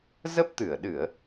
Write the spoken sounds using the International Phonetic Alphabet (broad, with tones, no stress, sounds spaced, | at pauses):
z ə˦˥ p̚ t̪ ɨ˧˩ ə̯ ɗ ɨ˧˩˨ ə̯